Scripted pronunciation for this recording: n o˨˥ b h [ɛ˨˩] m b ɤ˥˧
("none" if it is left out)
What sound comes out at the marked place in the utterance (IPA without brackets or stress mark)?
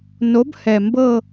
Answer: ɛ˨˩